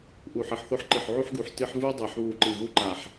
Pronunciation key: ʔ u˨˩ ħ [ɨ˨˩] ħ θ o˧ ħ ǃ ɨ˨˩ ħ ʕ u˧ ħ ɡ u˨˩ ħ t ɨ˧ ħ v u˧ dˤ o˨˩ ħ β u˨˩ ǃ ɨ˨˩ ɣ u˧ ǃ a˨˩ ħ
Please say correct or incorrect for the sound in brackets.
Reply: correct